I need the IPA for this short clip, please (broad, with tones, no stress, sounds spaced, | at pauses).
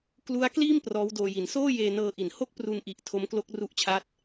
k l u˦˥ a̯ k l iː˥˩ m p r ɔː˦˥ w d oː˧ j i˩˦ n s oː˥˩ j eː˧ n ɤː˧ ʔ i˩˦ n h o˥˩ k̚ p r u˧ n ʔ i˨˩ ʔ tʰ o˦˥ m k l o˦˥ k̚ r u˦˥ ʔ t͡ɕʰ a˦˥ t̚